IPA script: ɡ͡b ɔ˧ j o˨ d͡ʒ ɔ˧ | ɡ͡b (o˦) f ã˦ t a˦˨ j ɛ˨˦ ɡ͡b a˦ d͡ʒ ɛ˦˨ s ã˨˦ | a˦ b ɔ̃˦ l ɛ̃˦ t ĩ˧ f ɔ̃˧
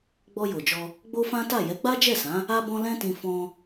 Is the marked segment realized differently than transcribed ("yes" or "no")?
no